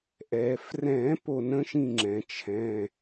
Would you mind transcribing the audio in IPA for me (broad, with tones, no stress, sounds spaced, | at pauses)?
ʔ ɛ˩ f r ɛ̃˨˩˦ p o˦˨ n ə̃˦˥ ʃ ĩ˦˨ ŋ͡ǁ ɛ̃˩ t͡ʃʰ ɛ̃˩˧˩